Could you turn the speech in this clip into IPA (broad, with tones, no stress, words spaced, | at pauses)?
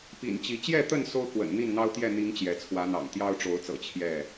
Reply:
pḭ˨˩nt͡ɕi˨˦ t͡ɕjɛ˥˨t̪ə˥˨n so˦ʊ̯kwə̰˨˩n n̪i˥˨nn̪ɑ˦ʊ̯t̪jɛ˥˨ n̪i˨˦ŋ t͡ɕjɛ˨˦ t͡sʰwä˨˦n̪ɑ̰˨˩ŋ t̪jɑ˦ʊ̯ʈ͡ʂo˨˦ʊ̯t͡sɤ̰˨˩ t͡ɕʰjɛ˥˨